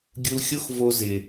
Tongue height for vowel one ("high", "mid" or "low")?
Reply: high